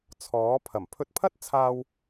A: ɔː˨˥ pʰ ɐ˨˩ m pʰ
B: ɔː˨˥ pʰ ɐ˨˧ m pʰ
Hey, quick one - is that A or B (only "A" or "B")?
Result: A